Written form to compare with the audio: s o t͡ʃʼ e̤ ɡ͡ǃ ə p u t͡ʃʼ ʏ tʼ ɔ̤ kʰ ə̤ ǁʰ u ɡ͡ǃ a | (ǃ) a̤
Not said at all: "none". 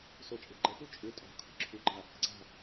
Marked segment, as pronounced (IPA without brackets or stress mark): ǀ